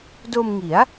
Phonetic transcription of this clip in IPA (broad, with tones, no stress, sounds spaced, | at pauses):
d o˧ m ŋ i˩˦ a̯